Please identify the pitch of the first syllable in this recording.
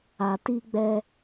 low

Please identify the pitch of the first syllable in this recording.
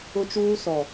high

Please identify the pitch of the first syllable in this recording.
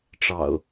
low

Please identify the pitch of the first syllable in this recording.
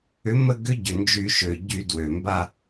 rising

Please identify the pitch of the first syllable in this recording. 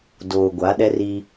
low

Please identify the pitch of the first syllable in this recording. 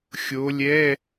rising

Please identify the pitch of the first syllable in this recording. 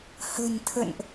low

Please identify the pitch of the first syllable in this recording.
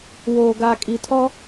low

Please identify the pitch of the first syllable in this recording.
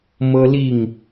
high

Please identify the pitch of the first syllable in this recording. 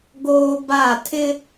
high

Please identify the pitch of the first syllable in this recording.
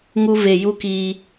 high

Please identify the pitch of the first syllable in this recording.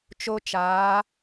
high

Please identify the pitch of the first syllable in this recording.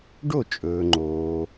falling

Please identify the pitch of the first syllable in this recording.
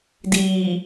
low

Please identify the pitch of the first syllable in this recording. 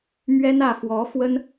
high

